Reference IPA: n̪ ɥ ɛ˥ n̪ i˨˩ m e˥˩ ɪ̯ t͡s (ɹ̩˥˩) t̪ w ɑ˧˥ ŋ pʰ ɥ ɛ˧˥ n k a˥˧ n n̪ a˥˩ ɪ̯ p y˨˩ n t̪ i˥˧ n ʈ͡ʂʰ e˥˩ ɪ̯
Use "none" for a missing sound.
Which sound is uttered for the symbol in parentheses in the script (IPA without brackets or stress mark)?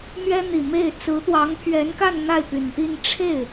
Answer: ɹ̩˧˥